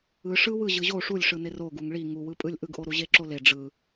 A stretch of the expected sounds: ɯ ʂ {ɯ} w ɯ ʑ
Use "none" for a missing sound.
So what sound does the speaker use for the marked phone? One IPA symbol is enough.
ɯ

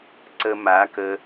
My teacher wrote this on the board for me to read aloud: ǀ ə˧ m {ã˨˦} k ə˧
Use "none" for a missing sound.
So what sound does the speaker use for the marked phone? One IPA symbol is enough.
a˨˦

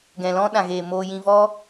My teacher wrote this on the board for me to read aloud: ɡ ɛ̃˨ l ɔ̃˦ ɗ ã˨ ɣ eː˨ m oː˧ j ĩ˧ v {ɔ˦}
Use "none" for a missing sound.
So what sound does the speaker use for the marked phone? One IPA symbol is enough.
ɔ˦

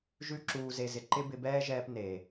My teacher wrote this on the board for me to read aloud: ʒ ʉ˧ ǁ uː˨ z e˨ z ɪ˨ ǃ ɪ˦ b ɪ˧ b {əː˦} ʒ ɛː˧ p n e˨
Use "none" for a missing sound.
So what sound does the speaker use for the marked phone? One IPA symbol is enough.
ɛː˦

